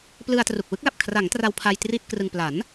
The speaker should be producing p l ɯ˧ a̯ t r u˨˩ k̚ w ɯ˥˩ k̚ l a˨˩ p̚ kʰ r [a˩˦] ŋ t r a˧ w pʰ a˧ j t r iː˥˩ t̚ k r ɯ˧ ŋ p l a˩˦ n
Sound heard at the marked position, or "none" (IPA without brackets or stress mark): a˩˦